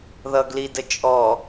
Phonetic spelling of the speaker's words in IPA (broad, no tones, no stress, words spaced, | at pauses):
ðʌɡli dət͡ʃʼɔ